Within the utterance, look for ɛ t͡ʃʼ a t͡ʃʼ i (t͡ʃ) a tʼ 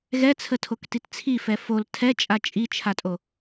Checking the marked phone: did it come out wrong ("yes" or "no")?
yes